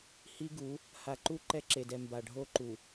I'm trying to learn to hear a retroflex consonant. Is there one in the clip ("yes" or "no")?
yes